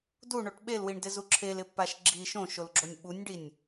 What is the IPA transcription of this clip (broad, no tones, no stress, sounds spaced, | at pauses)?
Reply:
d u ɳ o ʈ ɓ e l w i ɳ d ɪ z u ǁʰ e l ɪ pː a ʃ ɡ͡ǁ i ʃ õ ʃ o l ɡ͡ǁ o nʲ ɓ u nʲ ɖ i nʲ